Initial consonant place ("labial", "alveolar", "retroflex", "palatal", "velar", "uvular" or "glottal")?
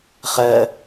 uvular